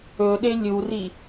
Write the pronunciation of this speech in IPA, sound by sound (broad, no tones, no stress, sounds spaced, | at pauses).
ɵ ɗ e lʲ u r i